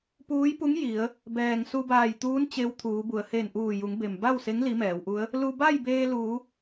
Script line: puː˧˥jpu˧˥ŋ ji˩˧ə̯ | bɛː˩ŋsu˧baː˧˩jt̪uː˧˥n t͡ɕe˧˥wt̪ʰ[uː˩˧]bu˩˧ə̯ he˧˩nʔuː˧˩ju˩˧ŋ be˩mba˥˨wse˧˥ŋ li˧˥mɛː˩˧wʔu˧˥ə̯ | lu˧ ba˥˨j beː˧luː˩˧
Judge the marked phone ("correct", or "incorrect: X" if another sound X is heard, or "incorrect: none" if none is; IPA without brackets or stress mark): correct